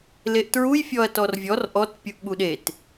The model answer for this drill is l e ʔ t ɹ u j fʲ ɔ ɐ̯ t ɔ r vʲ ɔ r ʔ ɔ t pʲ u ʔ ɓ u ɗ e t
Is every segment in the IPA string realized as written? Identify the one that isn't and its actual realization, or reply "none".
none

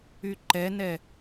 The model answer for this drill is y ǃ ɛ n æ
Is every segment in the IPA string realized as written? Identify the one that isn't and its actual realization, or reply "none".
æ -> ɛ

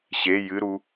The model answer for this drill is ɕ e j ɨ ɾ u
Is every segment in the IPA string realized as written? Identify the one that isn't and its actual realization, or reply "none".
none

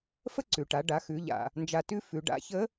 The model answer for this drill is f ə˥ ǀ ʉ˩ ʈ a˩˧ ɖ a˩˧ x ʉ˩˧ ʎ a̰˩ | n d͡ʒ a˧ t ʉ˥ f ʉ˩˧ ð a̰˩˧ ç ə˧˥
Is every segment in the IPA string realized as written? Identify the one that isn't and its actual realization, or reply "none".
ð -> ɖ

